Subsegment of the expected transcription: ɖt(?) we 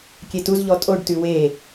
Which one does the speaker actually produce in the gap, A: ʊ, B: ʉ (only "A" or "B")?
B